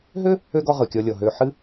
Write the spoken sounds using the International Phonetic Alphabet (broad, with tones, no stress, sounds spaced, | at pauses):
ɦ ø˥ | ø˥ ɡ ɔ˦ ʁ ɯ˩ kʲ ɔ˨ lʲ ɔ˩ ɦ ø˨ ħ ɨ˦